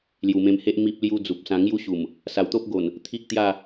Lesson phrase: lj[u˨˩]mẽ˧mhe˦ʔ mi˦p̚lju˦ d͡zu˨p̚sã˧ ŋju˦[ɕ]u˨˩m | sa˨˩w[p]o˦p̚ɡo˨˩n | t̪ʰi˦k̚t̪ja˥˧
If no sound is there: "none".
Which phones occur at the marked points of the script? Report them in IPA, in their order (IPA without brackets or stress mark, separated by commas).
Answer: u˨˩, ɕ, t̪